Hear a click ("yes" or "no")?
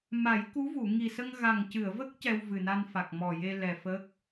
no